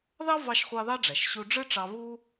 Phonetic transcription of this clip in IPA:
ðɑ˥ vɑ˧ʃχʷɑ˧ ðɑ˥ɖ͡ʐæ˩ʃ ɕu˧ ɖ͡ʐɯ˥ʈ͡ʂɑ˧ βu˥

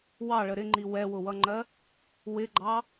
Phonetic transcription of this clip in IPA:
wɑɭə ɾɪŋ͡ǃi wɛwʊwʌŋ͡ǃɜ | wɪɡ͡ǃɑ

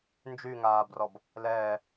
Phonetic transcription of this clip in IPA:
nd͡ʒyŋaːbrɔb | lɛː

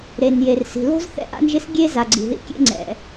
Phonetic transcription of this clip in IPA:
ɾe˩n je˩rsi̤˩ lo̤˥z θɛ̰˥ʔa̰˥nʒɪ˥s ɡʲe˥ za˩ɡ͡ǀi̤˩ðḭ˥ kʲḛ˥ŋ͡ǀɛ̰˩

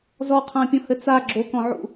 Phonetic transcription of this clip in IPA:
zɔqʰãpʲɔ̃hɘ t͡sa ɡ͡ǁokɔ̃ʕṵ

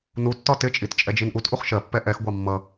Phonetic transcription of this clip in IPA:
nutːɒ tɪt͡ʃʼit t͡ʃʼɛd͡ʒinʔutʔuχ ʃɜpːɛ ʔɛxɡʷɑ mːʌ

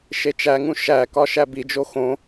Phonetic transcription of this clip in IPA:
ʃet͡ʃæŋũ ʃækɒ ʃæbid͡ʒo xõ

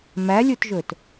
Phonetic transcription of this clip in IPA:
mælʲutʒɵt

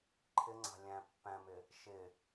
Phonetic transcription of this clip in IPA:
ǃʰɪŋ͡ǀɑ̤ lʲæ̃ pːæ̃mɪ | ʃɪ

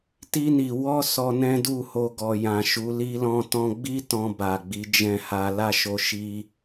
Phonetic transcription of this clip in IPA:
ti˧ni˨ wɔ˧ sɔ˧nɛ̃˦du˦˨ho˧ ɡɔ˨jã˨ʃu˨˦ li˧lɔ̃˧tɔ̃˧ɡ͡bi˦ tɔ̃˧ba˨ɡ͡bi˨˦ d͡ʒɛ̃˦˨ha˧ la˦ʃo˧ʃi˧

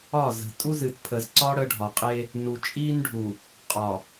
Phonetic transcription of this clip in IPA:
ɒ˦˨zə̤˨ tʼu˦zɨ˨t pʰə˨zǀɒ˦ ɽə˦ɖʱɒ˨qʼe˦ | nu˨t͡ʃʼi˦nɖʱu˨ | qʼɒ˨

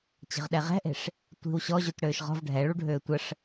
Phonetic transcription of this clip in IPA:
t͡ɕə̤ʁɗɛʁɛ̤ʔe̤ʂ | tʷi̤w ɕɔʑut ɽøːʃʁɔ̤v ɖʱɛɭuɖʱøː tʷəʂ

